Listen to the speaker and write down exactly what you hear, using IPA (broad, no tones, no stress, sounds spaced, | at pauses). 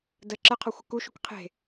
d ə ǁ ə qʰ ɔ xʷ ə k u ʃ u k qʰ e̤